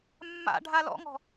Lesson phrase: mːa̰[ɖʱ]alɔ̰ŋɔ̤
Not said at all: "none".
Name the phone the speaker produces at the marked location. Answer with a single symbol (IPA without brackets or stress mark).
ɖʱ